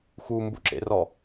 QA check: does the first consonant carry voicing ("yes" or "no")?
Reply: no